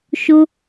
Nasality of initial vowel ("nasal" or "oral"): oral